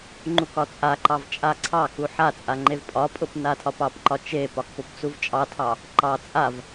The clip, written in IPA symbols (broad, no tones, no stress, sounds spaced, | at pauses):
ŋ͡ǃ u k ɒ t͡sʼ a ǃ ɑ v t͡ʃʼ a ǀʰ ɑ k u ħ a t͡sʼ a ŋ͡ǃ e v pʼ ɒ pʼ ʊ p n a tʰ ɒ p ɑ p ǃ ɒ t͡ʃ e p ɒ k p ʊ p t͡s u v t͡ʃʼ ɑ tʰ ɑ | ǃ ɑ t͡sʼ a v